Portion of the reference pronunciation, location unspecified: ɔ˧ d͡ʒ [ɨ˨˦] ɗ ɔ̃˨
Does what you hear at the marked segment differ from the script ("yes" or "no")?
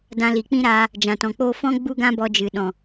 yes